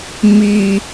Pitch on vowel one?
low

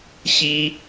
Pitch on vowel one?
high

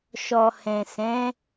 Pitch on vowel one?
low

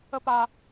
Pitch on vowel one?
high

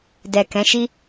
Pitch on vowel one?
low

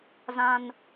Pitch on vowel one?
high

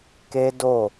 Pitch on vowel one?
high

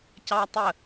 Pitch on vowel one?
high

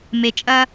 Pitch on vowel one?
low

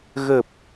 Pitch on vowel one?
low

